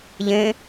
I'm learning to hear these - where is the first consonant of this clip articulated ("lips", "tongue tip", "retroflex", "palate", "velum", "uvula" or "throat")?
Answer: palate